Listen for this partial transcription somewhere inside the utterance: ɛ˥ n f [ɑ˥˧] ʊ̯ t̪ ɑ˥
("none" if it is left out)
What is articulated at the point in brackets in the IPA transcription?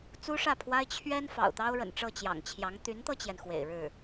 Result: ɑ̰˨˩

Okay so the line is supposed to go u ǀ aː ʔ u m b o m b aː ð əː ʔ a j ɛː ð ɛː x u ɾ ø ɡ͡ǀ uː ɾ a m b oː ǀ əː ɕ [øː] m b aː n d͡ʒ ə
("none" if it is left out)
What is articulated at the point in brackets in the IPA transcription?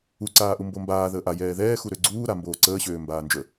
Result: øː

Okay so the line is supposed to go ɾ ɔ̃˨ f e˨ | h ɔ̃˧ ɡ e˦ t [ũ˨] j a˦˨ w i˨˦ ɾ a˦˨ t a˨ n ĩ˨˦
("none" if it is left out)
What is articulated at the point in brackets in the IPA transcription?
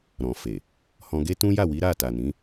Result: ũ˦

